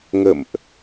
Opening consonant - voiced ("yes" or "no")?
yes